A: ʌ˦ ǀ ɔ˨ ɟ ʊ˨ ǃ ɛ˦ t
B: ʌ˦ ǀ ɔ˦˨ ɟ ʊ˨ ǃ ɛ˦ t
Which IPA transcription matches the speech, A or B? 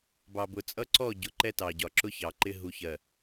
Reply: B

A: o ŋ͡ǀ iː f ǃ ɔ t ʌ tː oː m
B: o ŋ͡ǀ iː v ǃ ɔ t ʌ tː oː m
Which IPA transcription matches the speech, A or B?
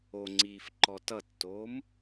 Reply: A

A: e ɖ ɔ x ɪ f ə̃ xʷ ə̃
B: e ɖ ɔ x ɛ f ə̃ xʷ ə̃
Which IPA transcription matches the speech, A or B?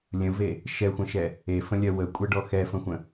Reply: B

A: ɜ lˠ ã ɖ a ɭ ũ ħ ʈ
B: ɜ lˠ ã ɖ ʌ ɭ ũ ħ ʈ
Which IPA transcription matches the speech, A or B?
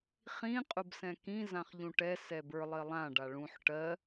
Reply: A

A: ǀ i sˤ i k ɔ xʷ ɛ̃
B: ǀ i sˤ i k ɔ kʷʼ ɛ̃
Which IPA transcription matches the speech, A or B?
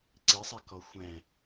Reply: A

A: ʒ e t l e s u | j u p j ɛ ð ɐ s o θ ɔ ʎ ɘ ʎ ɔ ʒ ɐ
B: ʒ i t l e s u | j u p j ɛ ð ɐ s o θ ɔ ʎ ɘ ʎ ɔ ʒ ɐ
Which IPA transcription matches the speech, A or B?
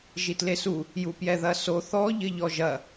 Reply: B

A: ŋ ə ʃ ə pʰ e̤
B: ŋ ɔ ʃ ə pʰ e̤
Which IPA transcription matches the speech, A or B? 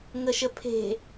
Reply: A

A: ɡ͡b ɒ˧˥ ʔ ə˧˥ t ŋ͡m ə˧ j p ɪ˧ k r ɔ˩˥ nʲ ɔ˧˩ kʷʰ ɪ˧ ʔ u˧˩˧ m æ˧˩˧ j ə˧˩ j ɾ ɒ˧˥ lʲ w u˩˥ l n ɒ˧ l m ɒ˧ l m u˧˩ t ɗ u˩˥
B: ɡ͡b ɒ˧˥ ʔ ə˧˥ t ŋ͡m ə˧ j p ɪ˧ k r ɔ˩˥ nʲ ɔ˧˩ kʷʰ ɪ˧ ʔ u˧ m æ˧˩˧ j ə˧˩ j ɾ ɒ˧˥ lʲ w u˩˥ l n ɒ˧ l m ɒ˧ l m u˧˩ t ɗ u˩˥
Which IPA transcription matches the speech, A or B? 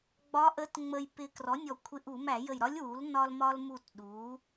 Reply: A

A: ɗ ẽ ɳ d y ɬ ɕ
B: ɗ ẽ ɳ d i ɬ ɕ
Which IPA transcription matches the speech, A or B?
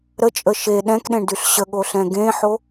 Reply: A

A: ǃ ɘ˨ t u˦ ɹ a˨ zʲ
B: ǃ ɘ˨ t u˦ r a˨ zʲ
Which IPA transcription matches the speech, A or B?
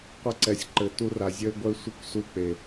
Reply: B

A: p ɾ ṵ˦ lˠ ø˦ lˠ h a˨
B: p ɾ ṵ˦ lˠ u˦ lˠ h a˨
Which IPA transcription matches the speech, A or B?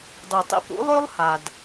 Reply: A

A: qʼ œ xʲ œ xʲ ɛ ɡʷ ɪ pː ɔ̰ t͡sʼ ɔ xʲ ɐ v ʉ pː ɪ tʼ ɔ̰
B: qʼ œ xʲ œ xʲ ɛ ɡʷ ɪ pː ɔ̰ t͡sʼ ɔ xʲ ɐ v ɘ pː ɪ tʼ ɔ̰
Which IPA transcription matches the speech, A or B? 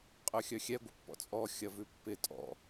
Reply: A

